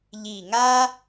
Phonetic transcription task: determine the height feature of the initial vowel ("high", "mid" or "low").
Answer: high